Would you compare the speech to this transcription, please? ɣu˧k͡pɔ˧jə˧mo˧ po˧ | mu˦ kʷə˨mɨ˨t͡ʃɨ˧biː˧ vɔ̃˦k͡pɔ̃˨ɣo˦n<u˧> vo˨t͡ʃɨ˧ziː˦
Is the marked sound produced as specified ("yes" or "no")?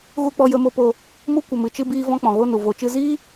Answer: no